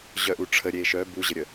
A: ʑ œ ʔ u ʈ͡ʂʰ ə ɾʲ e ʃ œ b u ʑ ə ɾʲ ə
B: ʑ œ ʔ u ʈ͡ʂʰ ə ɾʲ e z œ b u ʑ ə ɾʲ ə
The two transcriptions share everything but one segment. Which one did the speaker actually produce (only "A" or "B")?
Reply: A